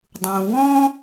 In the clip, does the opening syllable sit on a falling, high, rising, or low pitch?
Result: low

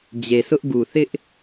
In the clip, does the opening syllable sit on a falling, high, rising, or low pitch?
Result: low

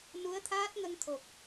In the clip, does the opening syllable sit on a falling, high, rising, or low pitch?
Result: rising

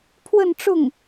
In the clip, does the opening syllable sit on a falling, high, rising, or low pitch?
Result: falling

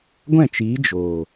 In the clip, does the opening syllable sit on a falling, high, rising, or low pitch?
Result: falling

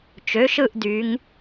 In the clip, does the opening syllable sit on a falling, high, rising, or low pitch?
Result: rising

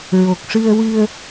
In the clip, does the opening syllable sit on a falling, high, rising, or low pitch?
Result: low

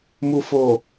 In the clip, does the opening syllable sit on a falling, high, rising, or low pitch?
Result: low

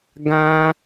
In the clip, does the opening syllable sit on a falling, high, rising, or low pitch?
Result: high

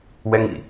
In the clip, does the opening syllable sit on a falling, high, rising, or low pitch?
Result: high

